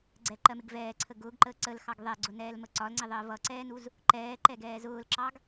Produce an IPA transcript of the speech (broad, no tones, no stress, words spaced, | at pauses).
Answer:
ɡ͡ǀɛǃɜmɪɡ vɛːǀʰə ɡʊːɡǃəː ǀəlxɑɡ ðˤɛɡ͡ǀʊnɛːlmə ǀɒlŋ͡ǀɪðˤəː vʌǀɛːnuz | ǃɛːǃɛɡɛː zʊːlǁɑɡ